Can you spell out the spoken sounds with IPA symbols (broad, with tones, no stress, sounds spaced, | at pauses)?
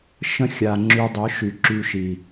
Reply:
ʃ ə̃˦ xʲ a˨ ŋ͡ǁ y˧ dˤ œ˨˦ ʃ y˨ ǁ y˧ ʃ i˨